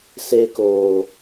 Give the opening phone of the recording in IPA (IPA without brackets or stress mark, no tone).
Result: s